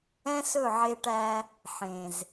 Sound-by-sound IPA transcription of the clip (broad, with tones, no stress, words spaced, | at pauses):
ɛ̃˦sɵ˦˨ʕe˧ʈæ˧ | ħẽ˨z